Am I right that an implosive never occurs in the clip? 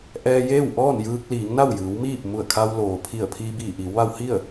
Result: yes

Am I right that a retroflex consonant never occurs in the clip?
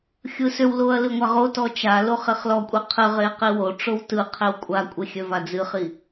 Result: no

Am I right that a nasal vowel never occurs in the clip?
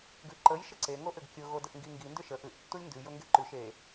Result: yes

